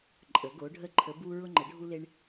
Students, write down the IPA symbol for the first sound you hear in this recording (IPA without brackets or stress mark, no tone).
ǃʼ